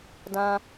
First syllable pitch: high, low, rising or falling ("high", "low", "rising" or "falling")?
high